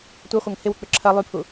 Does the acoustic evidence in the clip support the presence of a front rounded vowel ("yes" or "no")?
yes